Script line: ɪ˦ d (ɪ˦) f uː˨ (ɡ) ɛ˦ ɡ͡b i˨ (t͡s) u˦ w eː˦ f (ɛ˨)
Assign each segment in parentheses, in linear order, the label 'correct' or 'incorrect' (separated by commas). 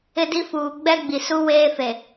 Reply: incorrect, incorrect, incorrect, incorrect